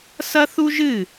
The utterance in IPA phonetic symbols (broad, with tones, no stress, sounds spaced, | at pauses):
s ɐ˦ θ u˦ ʒ ɨ˦˨